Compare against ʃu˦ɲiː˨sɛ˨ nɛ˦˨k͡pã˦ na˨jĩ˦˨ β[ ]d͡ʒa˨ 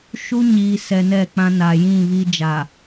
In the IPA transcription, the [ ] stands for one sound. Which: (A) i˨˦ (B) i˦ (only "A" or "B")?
B